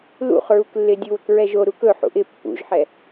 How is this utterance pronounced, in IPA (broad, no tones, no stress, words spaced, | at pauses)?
lṵχɹuklːɪ dʲuwəkɹɛʒo ɾukɵ ħṵʔɪ pːṵʒħɛ